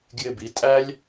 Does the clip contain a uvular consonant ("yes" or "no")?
no